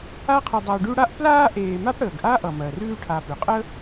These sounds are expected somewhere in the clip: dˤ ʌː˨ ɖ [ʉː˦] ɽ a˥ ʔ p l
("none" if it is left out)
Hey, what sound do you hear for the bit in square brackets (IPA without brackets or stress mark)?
ʉ˦